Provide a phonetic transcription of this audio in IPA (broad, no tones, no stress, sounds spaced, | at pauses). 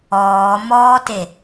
ɔː m ɔː t e